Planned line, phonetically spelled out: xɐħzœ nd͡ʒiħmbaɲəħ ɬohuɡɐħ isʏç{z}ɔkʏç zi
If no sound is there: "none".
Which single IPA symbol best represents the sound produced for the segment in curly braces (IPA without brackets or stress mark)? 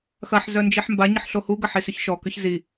ʃ